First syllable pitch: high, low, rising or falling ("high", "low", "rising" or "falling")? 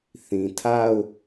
low